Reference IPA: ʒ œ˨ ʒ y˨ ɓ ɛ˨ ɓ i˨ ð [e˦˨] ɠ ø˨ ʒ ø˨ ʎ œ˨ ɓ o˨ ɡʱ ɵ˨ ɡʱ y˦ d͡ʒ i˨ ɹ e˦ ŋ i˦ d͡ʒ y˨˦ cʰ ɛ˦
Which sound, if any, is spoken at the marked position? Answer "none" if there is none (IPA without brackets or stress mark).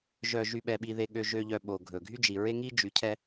e˨